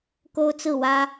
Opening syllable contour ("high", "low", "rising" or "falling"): high